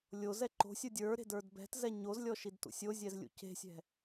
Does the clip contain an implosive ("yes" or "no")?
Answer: no